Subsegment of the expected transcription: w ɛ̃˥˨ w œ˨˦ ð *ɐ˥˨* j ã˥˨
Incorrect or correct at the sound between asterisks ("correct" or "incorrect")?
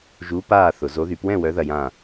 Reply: correct